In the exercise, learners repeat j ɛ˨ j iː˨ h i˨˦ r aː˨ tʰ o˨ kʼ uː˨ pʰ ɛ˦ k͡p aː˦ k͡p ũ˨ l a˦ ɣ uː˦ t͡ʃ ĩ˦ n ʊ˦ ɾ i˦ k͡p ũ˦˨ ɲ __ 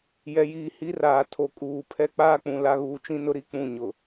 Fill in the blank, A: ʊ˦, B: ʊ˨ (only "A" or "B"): B